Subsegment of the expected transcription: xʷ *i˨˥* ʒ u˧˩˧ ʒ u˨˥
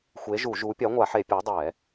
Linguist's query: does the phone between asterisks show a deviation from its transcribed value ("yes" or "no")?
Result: yes